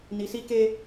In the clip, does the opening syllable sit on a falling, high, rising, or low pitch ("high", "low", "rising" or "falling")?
low